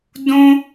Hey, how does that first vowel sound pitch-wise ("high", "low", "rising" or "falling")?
high